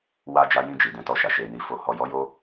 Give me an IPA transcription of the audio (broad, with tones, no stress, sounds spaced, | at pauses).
w a˧ d͡ʒ a˧ j ĩ˧ d͡ʒ i˨ d ɛ̃˧ t ɔ˧ ʃ a˨ ʃ e˨ n i˨ f o˨ h ɔ˨ j ɔ˨˦ j o˧